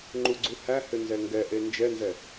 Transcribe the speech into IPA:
ŋ͡ǃuɡ͡ǀuhæhʏ nzɛŋɡɛʔe nd͡ʒɛnzɛ

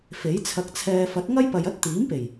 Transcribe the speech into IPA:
fe˨˥jt͡sʰɐ˧k̚t͡sʰɛː˧ fɐ˨˥t̚ŋɐ˥jpɐ˨j ɐ˥t̚t̪iː˨˥mpe˨˩j

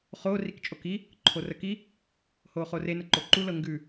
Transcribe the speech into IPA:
χo rikt͡ʃʼoki | ǃʰorəki | hoχore nəǃoǃu lɤŋɡʉ

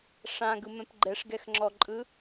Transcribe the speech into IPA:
ʂãɡɯmɛ̃p ɡ͡ǃɛʂɡɛxŋ͡ǁɔǃʼɯ

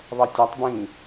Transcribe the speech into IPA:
ðˤʌtʲatˤbĩː

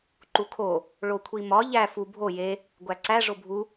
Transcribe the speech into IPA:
ǃukʰo | ɭokʷʰimɒ ʎæ fu bʱo je | ɡʷæǀæ ʐobʱu

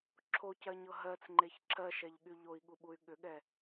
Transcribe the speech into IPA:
ǁʰocɜɲɤ ɦɜt͡sŋ͡ǃeç ǁʰɜʃɛʎɠy ʎoi̯ɠuɓuy̯ ɠʏɠɛ

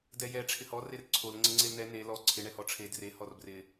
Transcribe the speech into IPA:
dɛjɛ ʈ͡ʂʰɪhɔ rerǀʰol ŋ͡ǀɪŋ͡ǀelnɛ ne lɔ ǀʰɪ ɳɛhɔʈ͡ʂʰe dre hɔrbrɪ

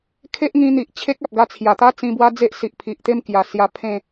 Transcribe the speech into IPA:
kʰe˦ʔŋĩ˧n̪i˨ʔt͡ɕʰe˦k̚ a˨p̚ɡa˧t͡sʰja˨˩t̪a˦ t͡sĩ˧bwa˦ d͡ze˦ʔsi˨ʔpʰi˨ʔt̪e˥˧m kja˨˩sja˧ pʰẽ˥˧

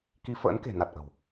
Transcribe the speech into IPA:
ki˧ fə̰ː˧˥nke̤˨˩na˨˩t̚ ʔə̤˨˩w

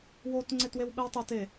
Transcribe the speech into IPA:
wot ŋ͡ǀetwewɓɛwtˤot e

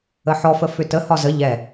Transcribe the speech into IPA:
əħɔfə fʏtəhɒ zə ʎɛ

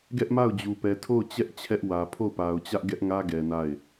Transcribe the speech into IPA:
ɡɛ˦ʔma˦˨ʊ̯d͡ʑu˨ pɛ˨tʰo˦˨ʊ̯t͡ɕɛ˦ʔ t͡ɕʰɛ˦ʔwä˨ pʰo˦˨ʊ̯pa˨ʊ̯t͡ɕä˦ʔ ɡɛ˦ʔŋä˦ɡɛ˨ na˦˨ɪ̯

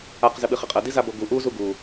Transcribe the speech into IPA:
aq zɘɓɨχɘqʼɐ dizaboɡu ʔu zuɡu

